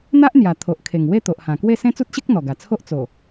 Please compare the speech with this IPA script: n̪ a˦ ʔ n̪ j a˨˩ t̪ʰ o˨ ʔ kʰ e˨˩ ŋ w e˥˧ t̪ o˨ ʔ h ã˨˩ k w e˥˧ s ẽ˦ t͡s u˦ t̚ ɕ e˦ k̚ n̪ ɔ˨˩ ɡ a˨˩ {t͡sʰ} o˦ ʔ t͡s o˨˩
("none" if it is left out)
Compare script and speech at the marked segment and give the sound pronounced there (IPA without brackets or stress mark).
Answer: t͡sʰ